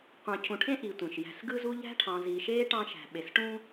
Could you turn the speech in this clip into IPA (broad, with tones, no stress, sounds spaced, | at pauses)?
qʷ ɑ̃˨ cʰ ũ˨ ʈʰ ẽ˥ ʔ i˨ tʷ ẽ˩ ʃ j æ̤˨ s ɡ ɯ˦ z u˦ ʎ æ̤˥ ʈʰ ɑ̃˨ z i˨ ʃ eː˥ ʈ ɑ̃˦ ʃ æ̤˨ ɓ e˨ s ʈ ũː˥